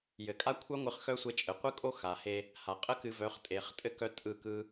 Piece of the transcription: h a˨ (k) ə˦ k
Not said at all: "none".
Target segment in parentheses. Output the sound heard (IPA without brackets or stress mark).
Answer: qʼ